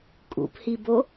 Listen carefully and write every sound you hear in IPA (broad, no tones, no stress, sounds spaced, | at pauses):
kʼ ṵ p h i b o